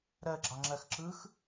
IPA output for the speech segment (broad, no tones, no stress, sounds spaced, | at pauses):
ɾ ɜ ɡ͡ǁ ɑ ŋ͡ǁ ɜ x ǁ ɯ x